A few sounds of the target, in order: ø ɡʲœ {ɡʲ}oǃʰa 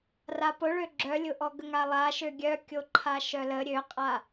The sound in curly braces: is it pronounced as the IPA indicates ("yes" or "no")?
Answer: no